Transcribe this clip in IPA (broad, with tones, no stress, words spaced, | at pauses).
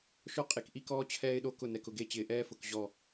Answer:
ʃɔ˦qʼe˨kʔi˦kɔː˦ t͡ɕʰɛː˦ɪ̯ɗo˦ kʊ˦˨nɛ˨k ʊ˨ɡe˦˨t͡ɕɪː˨ ʔɛː˦fʊ˨k ʑɔ˦˨